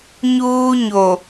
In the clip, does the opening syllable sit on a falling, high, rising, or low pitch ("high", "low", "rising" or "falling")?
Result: high